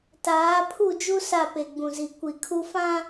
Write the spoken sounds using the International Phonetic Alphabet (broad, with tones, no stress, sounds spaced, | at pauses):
t aː˨˦ pʰ u˦˨ d͡ʒ u˦ s a˦˨ p e˨ ɡ͡b ũ˨ z i˨ kʷ i˨ kʰ u˦ f ã˦